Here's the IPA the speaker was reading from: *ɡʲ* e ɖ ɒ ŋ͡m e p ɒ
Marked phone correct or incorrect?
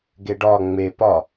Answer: incorrect